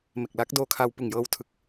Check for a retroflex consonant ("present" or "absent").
absent